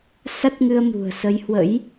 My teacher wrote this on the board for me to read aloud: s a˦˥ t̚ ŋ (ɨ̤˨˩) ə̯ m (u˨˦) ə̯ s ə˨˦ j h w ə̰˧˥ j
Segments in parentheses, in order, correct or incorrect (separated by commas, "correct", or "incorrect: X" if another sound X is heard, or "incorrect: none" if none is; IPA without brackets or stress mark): incorrect: ɨ˧, incorrect: ṳ˨˩